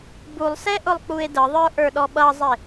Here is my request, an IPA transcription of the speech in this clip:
bulˠsɛ ʔʊlˠk͡pue̯dəðˤə˞ ʔə˞ɗɔɓʌzˤɪ

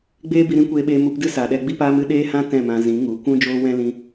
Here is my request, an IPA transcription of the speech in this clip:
ɡ͡beː˦bi˧ ɾĩ˦kʷeː˧ɓeː˧ mu˧pdɨ˦sa˨ɗɛ˧ ɡ͡bi˦ paː˧mɨ˧ ɗeː˦hã˦ tɛ̃˦˨mã˧ zĩ˨˦ŋu˨˦kʷũ˦ d͡ʒoː˦wɛ̃˦ lĩ˧

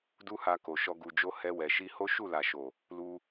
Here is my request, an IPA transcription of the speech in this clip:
du˦ha˧ko˨ʃɔ˧ ɡu˨d͡ʒo˧ hɛ˧wɛ˨ʃi˧ho˦ ʃu˦˨la˨ʃo˨ | lu˧

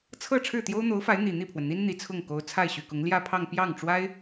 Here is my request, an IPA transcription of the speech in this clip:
t͡sʰɤ˥˧ ʈ͡ʂʰɻ̩˥˩t̪jo˥ʊ̯n̪o˧˥ʊ̯fa˧˥ɪ̯ n̪i˨˩ n̪i˥˩pʰwə˩nn̪i˥n n̪i˨˩t͡sʰʊ˥˩ŋ ko˧˥ʊ̯ t͡sʰa˥˩ɪ̯ ɕy˨˩kʊ˧˥ŋ ljä˥˧pʰɑ˥˧ŋ pjɑ˥˩ŋʈ͡ʂwa˥ɪ̯

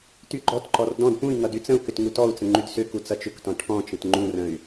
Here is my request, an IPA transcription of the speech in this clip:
tyɡ͡ǃɔtǃɔr dɔ̃d pũi̯ ŋʌdyt͡sə̃u̯kʏt ŋutɔu̯t͡sə̃ ŋ͡ǃydsʏku t͡sʌt͡ʃʏktɔ̃ ʈʰɔ̃t͡ʃə̃t ŋ͡ǃũrə̃y̯

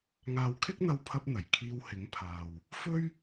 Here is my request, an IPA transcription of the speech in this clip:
ŋaː˨wkʰɪ˥k̚n̪ɐ˧wpʰɐ˧p̚ n̪ɐ˨˩j kʰiː˧whɪ˨˥ŋpʰaː˨w | fɵ˥ɥ

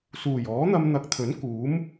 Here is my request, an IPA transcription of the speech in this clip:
suː˨˩jɔː˨˥n̪ɐ˧m n̪ɐ˨˥k̚t̪ʰɵ˨˥n kuː˨˥m

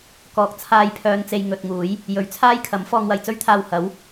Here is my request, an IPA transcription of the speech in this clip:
kɔː˧k̚ t͡sʰaː˧jpʰœː˨nt͡se˨j ŋɵ˨t̚ŋuː˨˥j | jɵ˨˧ɥt͡sʰaː˥jkʰɐ˨˥m fɔː˧ŋwɐ˨jt͡sɵ˥ɥt̪ʰaː˧w hɐ˨˥w

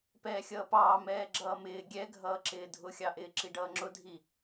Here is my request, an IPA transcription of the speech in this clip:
pɛːxʲʌːpɑː mɛːɡ͡ǁʌːmɪː ɡʲɛɡʱʌːǁɪː dʱʊxʲɑʔɪː ǁiɖʌːŋ͡ǁʊdʱi

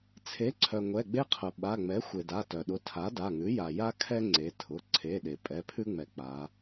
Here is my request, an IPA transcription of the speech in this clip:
t͡sʰe˩˥ǀʰœ˩ ŋʷɛ˩˧˩ɡ͡be˦qʰʊ˩ ɓa˩˧˩ ŋ͡mɛ˩˥xʷe˩da˩˧˩ tœ˩ɗʊ˩˥ tʰa˩˥da˩˧˩ŋʉ˩˥ ja˩ja˦kʰɛ˦ ŋ͡ǀe˩˧tʰʊ˩˧˩ ǀʰe˩˧˩ɗe˩ pʼɛ˩˧˩pʰʉ˦ŋ͡mɛ˩ k͡pa˩˧

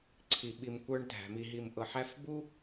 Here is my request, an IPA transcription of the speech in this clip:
ǀʰi˨ɓi˨mkʷə˞˧ɳ dʱæ̤˨mi˨ɦi˨m ʔɤ˨ ħæ˧f bu˦

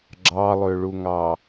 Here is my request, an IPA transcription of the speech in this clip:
ɡ͡ǁɑlˠøɭuŋɑ

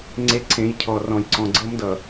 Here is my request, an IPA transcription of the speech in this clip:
ŋ͡ǀe˦ ǀʰẽ˨˦jcʰɔ˨ rɔ̃˨jǀɔ̃˨ ɡ͡ǀɤ˦mdʌ˨

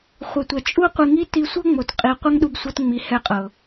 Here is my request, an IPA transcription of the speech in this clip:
χʷɛ˨tʷɛ˨ t͡ʃʼu˦qʷi˧ŋi˦ ti˧sʷɤ˦ŋ͡mo˨t qʼi˧ qʷɛ˦ŋɗu˧bsʷɤ˧tŋ͡mi˨ hɛ˦˨qʼɤ˨

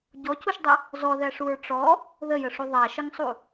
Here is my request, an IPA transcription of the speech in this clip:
ɟɔcuʃdˤə | zɔðæʂuɹ ʈ͡ʂɔ | ðəjəʂu ðˤæʃəŋsˤu

